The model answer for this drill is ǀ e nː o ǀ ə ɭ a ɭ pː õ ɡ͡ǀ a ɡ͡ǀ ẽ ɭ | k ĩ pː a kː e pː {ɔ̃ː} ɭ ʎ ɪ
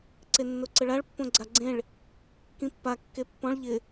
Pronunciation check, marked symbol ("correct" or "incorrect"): incorrect